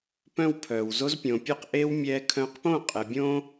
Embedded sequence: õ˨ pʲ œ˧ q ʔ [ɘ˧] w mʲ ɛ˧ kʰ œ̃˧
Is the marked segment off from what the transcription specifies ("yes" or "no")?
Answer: yes